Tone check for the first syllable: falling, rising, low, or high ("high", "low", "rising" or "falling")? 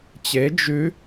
rising